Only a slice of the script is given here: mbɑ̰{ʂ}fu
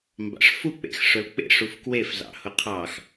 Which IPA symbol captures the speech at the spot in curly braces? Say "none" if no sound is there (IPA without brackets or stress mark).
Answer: ʂ